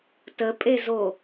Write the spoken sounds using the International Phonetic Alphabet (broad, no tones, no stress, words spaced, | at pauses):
təpʼezo